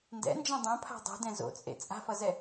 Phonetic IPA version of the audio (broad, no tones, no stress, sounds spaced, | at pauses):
n d ɛ̰ n d͡ʒ ɛ̃ dˤ õ pʰ a̤ dˤ o̤ d ɛ̃ z o̰ t͡sʼ ḛ t͡sʼ a̤ f ʌ z ɛ